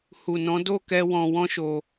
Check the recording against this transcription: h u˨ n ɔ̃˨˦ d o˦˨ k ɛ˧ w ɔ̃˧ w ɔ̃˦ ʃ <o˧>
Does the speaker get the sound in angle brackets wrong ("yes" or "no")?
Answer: no